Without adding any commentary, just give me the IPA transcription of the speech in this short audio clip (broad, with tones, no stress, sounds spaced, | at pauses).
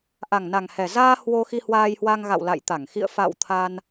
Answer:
ʔ a˨˩ ŋ n a˨˩ ŋ h ɛ˨˩ z aː˧ h w o˧ x i˧ h w aː˧ j h w a˧ ŋ ɣ a̰˧˨ w l a̰˧˨ j t̪ a˧˩ ŋ x ḭ˧˨ ə̯ f a̰˧˨ w t̪ʰ a˧ n